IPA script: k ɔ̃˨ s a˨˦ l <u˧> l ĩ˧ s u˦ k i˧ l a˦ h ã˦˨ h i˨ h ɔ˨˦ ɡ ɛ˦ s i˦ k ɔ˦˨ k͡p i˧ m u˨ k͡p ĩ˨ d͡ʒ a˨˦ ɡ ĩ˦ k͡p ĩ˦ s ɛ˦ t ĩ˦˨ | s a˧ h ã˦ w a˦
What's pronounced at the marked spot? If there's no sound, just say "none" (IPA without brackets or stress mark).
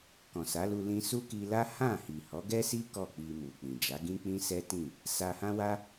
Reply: u˧